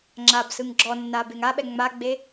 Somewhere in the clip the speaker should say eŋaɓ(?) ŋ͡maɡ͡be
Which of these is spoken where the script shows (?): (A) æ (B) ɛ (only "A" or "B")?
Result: B